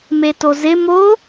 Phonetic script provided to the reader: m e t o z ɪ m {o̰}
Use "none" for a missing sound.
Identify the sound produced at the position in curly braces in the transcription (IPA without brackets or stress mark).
o